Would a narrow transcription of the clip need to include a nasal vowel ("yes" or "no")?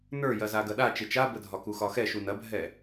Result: no